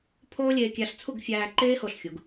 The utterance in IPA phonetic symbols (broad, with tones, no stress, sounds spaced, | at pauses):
pʰ oː˥ lʲ eː˧ kʲ æ˧ ɬ t͡sʰ u˥˧ ɡ fʲ æː˧ ǃ eː˥ h o˧˩ ɬ xʲ u˩˧ ɡ